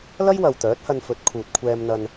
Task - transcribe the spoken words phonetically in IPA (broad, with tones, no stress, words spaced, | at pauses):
lɐ˥jwɐ˨w t̪œː˨˥t̚hɐ˧nfɵ˨˥t̚ kʰuː˨t̚kʷʰɛː˧mn̪ɐ˧n